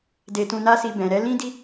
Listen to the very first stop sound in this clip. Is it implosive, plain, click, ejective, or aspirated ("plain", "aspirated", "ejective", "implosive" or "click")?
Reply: plain